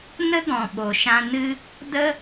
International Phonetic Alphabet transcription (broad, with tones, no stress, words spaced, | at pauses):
nə˦ɡɔ̃˨ɓo˨ʃã˧ nɨ˦ | də˦